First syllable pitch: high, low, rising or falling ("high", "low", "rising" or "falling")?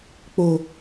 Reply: low